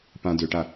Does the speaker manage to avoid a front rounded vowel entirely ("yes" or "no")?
no